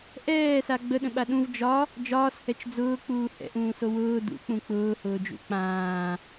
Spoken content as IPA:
ʔ ɛː s a ɡ͡b ə ɗ ə̃ ɓ a ɗ ũ v d͡ʒ ɒ | d͡ʒ ɒː s h ɛ t͡ʃ d͡z ʊː k͡p uː h ɛ̰ ʔ ũː s o w ʊː d ṵ k͡p ũ k͡p ʊː h ʊː d͡ʒ ṵ k͡p ãː

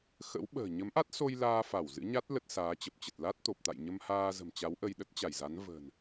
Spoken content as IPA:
x ə̰˧˥ w ɓ ə̤ː˨˩ ɲ ə˨˦ m ʔ a˦˥ t̚ s o˧ j l aː˧ f a˧˩ w z ɨ̰˧˥ ɲ a˦˥ t̚ l ə˦˥ t̚ s aː˨˦ t͡ɕ ə˨˩ p̚ t͡ɕ ə˨˩ t̚ l a˦˥ t̚ t̪ o˨˩ p̚ t̪ a̰˧˨ j ɲ ə˧ m h aː˧ z ə̤˨˩ m t͡ɕ a˨˦ w ʔ ə˧ j ɗ ə˦˥ t̚ t͡ɕ a˧˩ j z a˨˦ n v ə̤˨˩ n

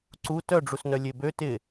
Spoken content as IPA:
ǀ u t œ ɖ͡ʐ u s n œ lʲ e b ø t ɪ

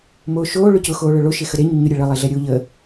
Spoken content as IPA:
m oː ʃ oː ɭ ʊ c ʊ x oː ɭ œ ɭ o ʃ e x ə ɾ e ɲ u ɲ ʊ ɾʲ ɛ ɭ ə lˠ e ɮ ɛ ɾʲ oː ʎ əː

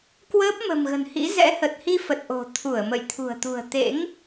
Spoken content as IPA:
k w əː˦˥ p̚ m ə̤˨˩ m ɣ ə̤˨˩ n h ḭ˧˥ z ɛ̰˧˥ h ə˨˩ t̚ h i˧ f ə˨˩ t̚ ʔ o̤˨˩ t̪ʰ u˧˩ ə̯ m ə̰˧˨ j t̪ʰ ṳ˨˩ ə̯ t̪ ṳ˨˩ ə̯ t̪ ḛ˧˥ ŋ

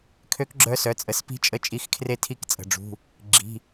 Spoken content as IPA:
kʰ ø˧˥ k ɡ͡ǁ œ˧˥ s œ˩˧˩ t͡sʼ ə˩˧˩ s p i̤˧˥ t͡ʃʼ ə˥˧ t͡ʃʼ i˧˥ x kʰ r e˥˧ tʰ i˥˧ k t͡sʼ ə̤˩˧˩ ɖ͡ʐ ṳ˩˧˩ | ɡ͡ǁ i̤˩˧˩

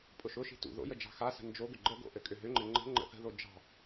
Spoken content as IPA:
pʼ ʊ ʃ ʊ ʃ i̤ t ṵ ð o̰ j ə d͡ʒ ɑ̤ x a s ə̤ n d͡ʒ o ɡ ʏ ɡ͡ǃ ə ɡ o̰ ʔ ɘ kʼ ʏ ɦ ʏ ŋ͡ǃ ɘ ŋ͡ǃ ə̤ ŋ͡ǃ ə̰ θ ə̤ ð o d͡ʒ ɑ̤

